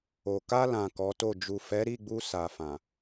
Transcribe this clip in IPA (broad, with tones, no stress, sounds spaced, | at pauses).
o˨ k a˧ l ã˨ k ɔ˨˦ t o˦˨ d͡ʒ u˨ f ɛ˨˦ ɾ i˦˨ ɡ͡b u˧ s a˨ f ã˨